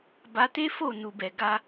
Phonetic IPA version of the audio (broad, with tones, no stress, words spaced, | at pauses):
ba˧te˦fo˦˨nu˨ bɛ˨ɡa˧